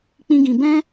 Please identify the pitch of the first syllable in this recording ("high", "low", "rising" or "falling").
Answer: high